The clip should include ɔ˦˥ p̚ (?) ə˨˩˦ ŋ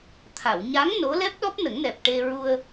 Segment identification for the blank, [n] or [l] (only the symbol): n